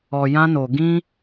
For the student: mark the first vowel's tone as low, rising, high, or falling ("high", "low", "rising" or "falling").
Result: low